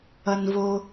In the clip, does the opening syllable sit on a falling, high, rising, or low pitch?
low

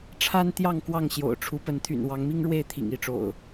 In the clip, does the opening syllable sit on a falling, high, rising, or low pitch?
high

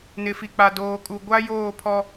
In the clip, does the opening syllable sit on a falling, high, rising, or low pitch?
low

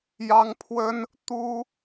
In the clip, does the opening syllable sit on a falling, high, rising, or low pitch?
high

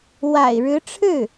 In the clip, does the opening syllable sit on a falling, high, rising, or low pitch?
low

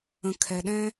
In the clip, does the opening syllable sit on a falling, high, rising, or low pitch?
low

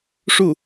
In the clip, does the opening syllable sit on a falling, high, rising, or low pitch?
falling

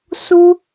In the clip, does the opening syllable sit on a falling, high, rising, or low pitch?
high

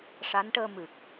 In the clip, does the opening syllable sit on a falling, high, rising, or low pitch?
rising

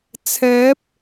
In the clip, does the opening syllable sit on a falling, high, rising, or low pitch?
rising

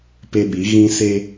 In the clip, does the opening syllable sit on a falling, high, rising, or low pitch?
high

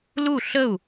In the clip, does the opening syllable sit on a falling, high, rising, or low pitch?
falling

